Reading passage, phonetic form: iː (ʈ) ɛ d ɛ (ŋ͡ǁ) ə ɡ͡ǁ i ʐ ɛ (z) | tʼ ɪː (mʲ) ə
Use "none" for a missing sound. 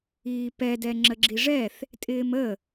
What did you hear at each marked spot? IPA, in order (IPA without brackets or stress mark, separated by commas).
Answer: p, ŋ͡ǁ, θ, m